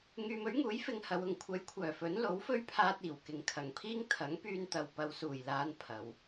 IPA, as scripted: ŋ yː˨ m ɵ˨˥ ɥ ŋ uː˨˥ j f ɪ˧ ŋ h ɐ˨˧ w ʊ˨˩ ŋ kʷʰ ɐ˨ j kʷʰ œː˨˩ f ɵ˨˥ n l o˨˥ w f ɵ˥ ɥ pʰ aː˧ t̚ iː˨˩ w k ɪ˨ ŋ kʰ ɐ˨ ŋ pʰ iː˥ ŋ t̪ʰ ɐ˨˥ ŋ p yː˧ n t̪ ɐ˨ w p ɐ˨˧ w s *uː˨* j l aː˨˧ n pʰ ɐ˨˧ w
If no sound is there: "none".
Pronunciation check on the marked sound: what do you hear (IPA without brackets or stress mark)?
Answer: uː˨˩